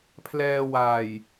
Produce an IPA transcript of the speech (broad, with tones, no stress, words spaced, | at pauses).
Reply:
pʰlɛː˧waː˨˩j